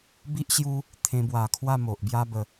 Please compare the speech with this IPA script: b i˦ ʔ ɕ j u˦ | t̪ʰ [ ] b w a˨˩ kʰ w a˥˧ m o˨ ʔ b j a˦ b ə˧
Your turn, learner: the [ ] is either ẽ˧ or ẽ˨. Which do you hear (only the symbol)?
ẽ˧